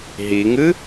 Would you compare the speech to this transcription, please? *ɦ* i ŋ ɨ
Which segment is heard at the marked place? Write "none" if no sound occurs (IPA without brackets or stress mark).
ɦ